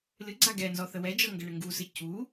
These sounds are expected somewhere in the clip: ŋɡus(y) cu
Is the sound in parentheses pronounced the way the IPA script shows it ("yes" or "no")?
no